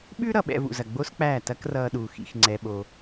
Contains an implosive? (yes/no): yes